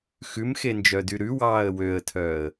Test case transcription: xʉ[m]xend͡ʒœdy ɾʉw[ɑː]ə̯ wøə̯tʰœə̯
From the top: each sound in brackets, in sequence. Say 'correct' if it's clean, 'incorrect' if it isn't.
correct, correct

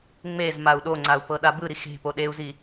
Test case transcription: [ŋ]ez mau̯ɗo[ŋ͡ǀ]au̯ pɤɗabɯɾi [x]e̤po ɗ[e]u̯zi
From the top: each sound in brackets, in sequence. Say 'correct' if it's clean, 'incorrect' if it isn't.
incorrect: ŋ͡m, correct, correct, correct

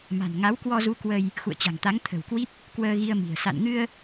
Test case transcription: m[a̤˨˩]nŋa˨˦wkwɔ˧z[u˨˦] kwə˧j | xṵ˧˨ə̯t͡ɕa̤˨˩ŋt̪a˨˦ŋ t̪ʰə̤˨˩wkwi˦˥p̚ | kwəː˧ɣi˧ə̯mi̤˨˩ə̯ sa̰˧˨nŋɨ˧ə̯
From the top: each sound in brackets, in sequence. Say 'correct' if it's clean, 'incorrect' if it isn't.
correct, correct

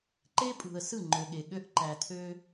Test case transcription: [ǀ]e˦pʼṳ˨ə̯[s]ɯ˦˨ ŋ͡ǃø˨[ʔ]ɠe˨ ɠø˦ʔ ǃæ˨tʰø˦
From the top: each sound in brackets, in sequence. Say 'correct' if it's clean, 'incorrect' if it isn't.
incorrect: ǃ, correct, incorrect: none

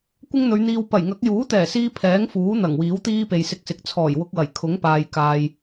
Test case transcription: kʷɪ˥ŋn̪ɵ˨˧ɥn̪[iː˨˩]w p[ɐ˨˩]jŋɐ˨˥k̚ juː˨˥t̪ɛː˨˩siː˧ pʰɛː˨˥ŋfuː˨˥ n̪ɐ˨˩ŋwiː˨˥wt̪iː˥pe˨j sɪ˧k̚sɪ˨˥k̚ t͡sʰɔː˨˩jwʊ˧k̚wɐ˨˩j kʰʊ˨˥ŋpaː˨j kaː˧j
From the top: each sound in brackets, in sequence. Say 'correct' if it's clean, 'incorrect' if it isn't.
incorrect: iː˧, correct

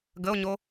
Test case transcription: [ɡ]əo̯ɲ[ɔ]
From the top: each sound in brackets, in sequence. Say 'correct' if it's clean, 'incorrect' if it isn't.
correct, incorrect: o

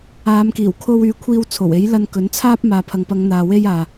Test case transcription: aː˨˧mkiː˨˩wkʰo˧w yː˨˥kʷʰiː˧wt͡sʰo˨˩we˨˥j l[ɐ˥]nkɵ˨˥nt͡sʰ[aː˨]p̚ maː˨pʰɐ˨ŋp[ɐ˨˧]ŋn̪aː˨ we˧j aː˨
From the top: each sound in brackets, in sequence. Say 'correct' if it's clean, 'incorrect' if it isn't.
incorrect: ɐ˧, incorrect: aː˥, correct

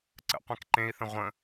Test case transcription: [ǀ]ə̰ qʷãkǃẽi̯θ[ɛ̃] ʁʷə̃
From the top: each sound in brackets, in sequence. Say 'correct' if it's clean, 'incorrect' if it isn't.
correct, incorrect: ə̃

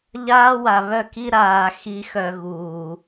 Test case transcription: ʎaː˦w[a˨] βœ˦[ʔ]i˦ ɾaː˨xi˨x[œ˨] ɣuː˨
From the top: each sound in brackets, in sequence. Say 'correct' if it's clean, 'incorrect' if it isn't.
correct, incorrect: k, correct

